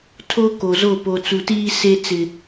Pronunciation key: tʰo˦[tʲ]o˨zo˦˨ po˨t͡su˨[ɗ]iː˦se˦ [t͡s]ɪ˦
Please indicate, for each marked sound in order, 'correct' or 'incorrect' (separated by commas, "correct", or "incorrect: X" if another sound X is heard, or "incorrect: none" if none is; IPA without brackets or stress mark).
incorrect: k, incorrect: t, correct